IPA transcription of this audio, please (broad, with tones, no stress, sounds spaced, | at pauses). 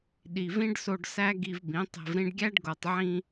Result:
ɗ i˨ v ĩ˦ ɖ s o˧ ɖ s æ˦ ɡ i˧ v b ĩ˨˦ tˤ e̤˧ v ɾ ĩ˧ ɖ ɡʲ æ˦ ɖ ɡ o˨ tˤ ʕ ĩ˧